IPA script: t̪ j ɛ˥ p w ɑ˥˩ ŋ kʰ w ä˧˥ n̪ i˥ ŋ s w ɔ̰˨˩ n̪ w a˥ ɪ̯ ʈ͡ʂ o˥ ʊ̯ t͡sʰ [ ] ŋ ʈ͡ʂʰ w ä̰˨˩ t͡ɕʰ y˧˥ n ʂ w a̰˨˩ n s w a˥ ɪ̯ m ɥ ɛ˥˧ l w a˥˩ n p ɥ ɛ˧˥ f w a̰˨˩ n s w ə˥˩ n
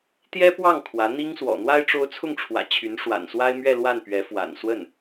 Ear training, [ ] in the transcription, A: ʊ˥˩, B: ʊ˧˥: A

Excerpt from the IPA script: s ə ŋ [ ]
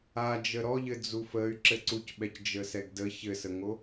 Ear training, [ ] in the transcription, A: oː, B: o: B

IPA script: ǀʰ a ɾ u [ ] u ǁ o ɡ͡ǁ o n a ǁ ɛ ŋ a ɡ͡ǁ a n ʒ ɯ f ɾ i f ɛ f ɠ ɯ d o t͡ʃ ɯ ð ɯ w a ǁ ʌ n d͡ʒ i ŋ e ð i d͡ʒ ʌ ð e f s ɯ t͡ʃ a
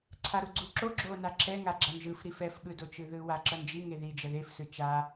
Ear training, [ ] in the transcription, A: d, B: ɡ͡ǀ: B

